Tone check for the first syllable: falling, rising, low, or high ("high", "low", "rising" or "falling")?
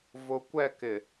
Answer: low